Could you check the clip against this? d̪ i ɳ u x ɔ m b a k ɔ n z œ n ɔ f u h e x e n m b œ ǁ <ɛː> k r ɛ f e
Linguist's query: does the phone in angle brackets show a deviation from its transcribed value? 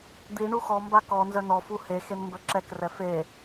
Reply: yes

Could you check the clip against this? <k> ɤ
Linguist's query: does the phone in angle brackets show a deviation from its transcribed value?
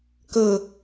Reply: no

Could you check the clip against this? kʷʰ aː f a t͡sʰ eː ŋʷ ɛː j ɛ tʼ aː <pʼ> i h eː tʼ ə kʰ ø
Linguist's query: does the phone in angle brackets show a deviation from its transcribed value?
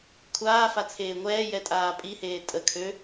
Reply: no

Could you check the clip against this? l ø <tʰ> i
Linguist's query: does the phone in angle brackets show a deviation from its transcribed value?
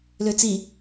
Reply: yes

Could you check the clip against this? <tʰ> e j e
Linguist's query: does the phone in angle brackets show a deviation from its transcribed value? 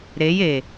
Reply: yes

